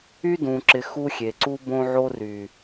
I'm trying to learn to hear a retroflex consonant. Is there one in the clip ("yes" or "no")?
no